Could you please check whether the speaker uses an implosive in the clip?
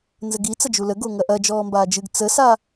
no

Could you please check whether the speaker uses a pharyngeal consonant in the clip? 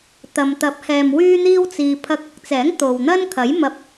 no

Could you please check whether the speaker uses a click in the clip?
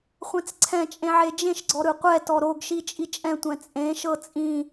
yes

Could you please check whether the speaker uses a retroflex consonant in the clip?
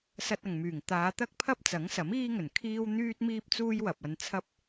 no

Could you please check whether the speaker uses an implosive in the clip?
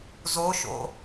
no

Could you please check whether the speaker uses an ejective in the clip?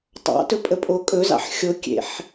yes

